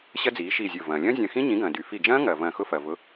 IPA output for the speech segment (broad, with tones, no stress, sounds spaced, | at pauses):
ɕ ɐ˦˥ d͡z iː˩˥ ʃ iː˧˩ zʲ ʊː˧˩ v ɐ̃ː˩ lʲ ɐ̃ː˦˥ zʲ ɐ̃˧˩ x ĩ˦˥ ɲ ĩ˩˥ ɡ ɐ̃ː˩ d y˩ f i˧˩ d͡ʒ ɐ̃ː˦˥ ŋ ɐː˩ v ɐ̃ː˧˩ x ʊ˦˥ f ɐː˩ v ʊ˩˥